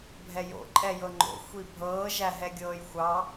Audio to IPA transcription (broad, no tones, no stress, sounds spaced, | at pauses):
bʱ ɛ j o̰ ǃʼ ɛ j ɤ ŋ͡ǃ o̰ xʷ i bʱ ɤː ʒ æ ɦ ɛ ɡʲ ɤː j xʷ ɑ